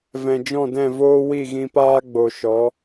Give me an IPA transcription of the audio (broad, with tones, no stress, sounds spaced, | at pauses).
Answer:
v ɛ̃˨ d͡ʒ ɔ̃˦˨ d ɛ̃˦˨ v oː˦ w i˦˨ ɣ ĩ˧ p aː˦ ɡ͡b o˨ ʃ ɔ˨˦